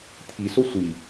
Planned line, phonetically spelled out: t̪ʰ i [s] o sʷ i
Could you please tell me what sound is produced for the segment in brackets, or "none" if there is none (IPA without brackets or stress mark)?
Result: s